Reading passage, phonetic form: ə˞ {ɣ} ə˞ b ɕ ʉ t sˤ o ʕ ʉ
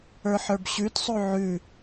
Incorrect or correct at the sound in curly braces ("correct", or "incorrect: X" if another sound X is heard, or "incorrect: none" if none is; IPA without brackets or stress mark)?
incorrect: ħ